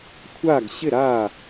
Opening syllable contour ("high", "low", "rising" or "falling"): falling